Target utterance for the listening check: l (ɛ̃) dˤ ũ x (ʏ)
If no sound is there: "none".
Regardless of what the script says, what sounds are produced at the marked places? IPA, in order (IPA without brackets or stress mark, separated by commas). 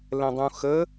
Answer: ɛ̃, ə